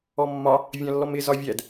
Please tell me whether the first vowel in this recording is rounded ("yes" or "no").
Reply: yes